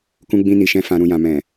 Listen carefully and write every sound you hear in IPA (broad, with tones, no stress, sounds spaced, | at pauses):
k ũ˧ ɡ͡b ĩ˧ n i˨ ʃ ɛ̃˧ f ã˨ ɾ ũ˨ j ã˨ m ɛ̃˨